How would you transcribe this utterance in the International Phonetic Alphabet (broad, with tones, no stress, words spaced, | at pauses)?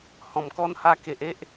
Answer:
hɔ̃˨˩mkɔ˦n ha˧ke˨ʔ e˦ʔ